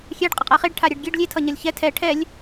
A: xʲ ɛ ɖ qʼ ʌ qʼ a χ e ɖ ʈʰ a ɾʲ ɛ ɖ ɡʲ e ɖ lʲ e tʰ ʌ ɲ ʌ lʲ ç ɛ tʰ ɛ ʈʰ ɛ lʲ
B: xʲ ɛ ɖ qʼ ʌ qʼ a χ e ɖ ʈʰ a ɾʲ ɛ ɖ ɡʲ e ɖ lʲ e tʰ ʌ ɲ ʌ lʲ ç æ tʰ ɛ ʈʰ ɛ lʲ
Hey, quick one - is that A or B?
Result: A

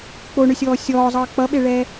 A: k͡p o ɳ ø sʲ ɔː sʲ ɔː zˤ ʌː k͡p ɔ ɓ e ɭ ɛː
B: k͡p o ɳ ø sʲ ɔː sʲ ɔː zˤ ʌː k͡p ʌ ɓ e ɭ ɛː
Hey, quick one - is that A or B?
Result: B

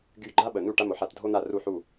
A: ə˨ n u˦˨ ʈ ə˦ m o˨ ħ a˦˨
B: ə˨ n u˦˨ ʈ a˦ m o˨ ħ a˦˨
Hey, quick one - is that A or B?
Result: B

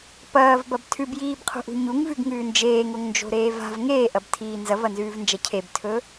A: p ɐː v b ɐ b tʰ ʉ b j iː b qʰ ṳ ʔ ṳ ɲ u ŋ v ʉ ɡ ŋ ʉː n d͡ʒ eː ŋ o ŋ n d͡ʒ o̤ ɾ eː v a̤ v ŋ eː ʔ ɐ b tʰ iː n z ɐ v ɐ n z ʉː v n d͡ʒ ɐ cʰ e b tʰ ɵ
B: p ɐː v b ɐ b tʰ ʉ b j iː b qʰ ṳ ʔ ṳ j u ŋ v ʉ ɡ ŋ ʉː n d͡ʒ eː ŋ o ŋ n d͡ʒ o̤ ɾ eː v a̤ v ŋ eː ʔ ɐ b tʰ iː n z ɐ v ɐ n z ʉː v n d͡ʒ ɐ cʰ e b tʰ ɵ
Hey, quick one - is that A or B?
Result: A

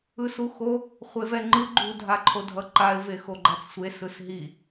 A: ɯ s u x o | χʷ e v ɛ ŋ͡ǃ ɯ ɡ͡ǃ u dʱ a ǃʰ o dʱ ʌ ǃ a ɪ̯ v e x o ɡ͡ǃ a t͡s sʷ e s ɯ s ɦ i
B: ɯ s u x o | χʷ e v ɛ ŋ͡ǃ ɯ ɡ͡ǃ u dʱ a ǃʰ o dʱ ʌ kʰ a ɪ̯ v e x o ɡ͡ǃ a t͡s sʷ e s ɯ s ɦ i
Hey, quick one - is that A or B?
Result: A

